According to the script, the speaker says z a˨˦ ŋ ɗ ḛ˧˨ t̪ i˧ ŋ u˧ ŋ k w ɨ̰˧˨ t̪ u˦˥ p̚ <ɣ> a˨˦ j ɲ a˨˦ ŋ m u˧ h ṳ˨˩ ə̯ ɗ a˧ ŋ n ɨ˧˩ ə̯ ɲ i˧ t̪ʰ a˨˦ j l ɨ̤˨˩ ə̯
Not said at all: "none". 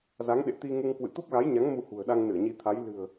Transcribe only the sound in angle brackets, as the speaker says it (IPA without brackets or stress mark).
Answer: ɣ